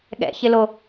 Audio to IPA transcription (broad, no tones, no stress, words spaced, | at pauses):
ɠɛ̰çɪlo